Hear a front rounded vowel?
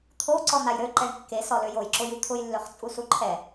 yes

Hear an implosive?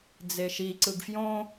no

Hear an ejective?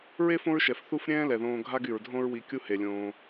no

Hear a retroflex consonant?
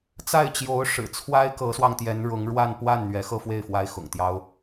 yes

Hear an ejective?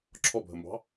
no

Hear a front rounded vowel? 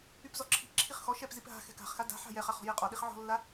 yes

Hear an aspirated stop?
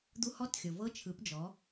yes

